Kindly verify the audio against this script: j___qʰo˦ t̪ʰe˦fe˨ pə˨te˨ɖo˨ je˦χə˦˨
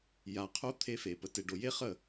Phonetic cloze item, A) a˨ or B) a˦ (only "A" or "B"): A